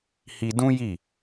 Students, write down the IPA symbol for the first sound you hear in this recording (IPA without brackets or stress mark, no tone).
h